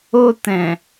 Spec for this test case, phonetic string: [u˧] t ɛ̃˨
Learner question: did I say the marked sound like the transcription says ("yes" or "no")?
no